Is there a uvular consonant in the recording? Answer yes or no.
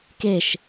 no